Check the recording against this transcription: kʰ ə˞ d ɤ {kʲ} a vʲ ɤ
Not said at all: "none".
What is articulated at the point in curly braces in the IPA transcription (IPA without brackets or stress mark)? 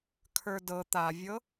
t̪